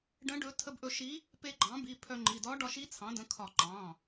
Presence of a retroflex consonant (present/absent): present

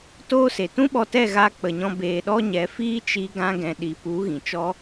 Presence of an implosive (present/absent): present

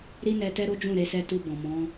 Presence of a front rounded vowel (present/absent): absent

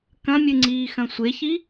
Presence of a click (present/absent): present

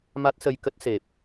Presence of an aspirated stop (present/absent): absent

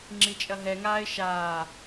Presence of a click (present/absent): present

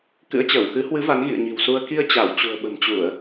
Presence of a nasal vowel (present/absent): absent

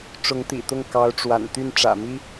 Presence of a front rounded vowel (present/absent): present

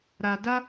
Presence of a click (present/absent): absent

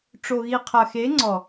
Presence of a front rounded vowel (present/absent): absent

